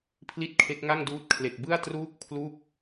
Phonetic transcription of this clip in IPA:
pʰ l i˦˥ t̚ kʰ e˦˥ k̚ ŋ a˥˩ ŋ d uː˦˥ t̚ kʰ l e˨˩ k̚ b ɯ˥˩ a̯ t r uː˥˩ k̚ pʰ l u˥˩ k̚

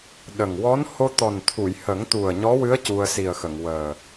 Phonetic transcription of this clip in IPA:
ɗ ə˨˩ ŋ w ɔ˧˥ n h o˧ t̪ ɔ˨˩ n t̪ʰ u˨˩˨ j h ə˨˩˦ ŋ t̪ u˨˩ ə̯ ɲ ɔ˧˥ w ɨ˧˥ ə̯ c u˧ ə̯ s i˨˩ ə̯ x ə˨˩˨ ŋ w əː˨˩

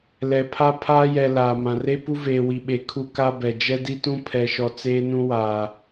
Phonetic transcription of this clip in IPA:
l ɛ˨ pʰ a˦ pʰ aː˦ j ɛ˨ l aː˨ m ã˨ r e˦ p u˦ v eː˨ w i˨ ɓ e˨˦ kʰ u˦ k a˦ b ɛ˨ d͡ʒ ɛ˦ d i˦ t ũ˦ pʰ ɛ˨ ʃ ɔ˨ t͡s eː˦ n ũ˦ w aː˨

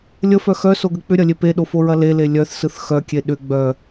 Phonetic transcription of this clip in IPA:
lʲ ə f œ x œ s o ɡ ə k͡p ʏ ɾʲ ɐ lʲ e p e ɗ o f o ɹ ɐ l e l e lʲ œ θ s ɯ θ x œ kʲ e ɗ ʏ ɡ͡b œ

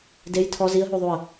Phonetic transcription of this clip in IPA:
d e j tʰ ɔ z i ə̯ ɦ u ðˤ u ə̯

